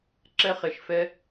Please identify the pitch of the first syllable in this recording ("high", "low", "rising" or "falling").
high